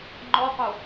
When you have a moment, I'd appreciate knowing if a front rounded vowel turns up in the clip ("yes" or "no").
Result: no